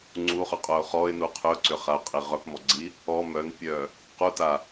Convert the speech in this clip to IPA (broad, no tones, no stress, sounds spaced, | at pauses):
ŋ͡ǀ u χ œ qʼ œ ʊ̯ χ ɔ ɪ̯ n u qʰ ʏ ʊ̯ ǀ ʏ χ a ʊ̯ qʼ i ʁ œ p m ɔ ɡ͡ǀ i | ɔ m œ n pʲ œ | q u t a